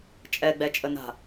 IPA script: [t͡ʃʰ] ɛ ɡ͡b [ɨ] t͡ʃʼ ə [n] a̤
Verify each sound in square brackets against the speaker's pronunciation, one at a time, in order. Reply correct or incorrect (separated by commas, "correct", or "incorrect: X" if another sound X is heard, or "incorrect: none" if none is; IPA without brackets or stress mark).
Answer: incorrect: t͡ʃʼ, incorrect: ɛ, correct